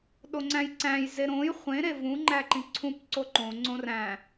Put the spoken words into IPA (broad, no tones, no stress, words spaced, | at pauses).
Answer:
ɗoŋ͡ǀæ̃jǀæ̃j zeɾõj χʷẽ ɾevũŋ͡ǃæǃĩ ǀʰũp ǀoǃõ ŋ͡ǀõræ̃